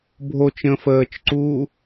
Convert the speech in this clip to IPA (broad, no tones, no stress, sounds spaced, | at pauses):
bʱ o t͡ʃ ə̃ː f əː t͡ʃ ǀ uː